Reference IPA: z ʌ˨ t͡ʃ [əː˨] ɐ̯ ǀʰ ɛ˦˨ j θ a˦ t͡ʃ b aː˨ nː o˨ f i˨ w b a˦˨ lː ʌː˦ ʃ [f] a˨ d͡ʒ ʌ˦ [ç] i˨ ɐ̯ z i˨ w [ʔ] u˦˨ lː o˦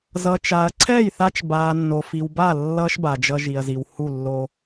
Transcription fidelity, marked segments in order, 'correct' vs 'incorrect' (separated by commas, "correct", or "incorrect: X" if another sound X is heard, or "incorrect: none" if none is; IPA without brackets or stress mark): incorrect: aː˨, incorrect: b, incorrect: ʒ, incorrect: h